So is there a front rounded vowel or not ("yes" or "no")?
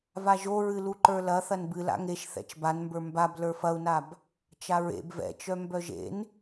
yes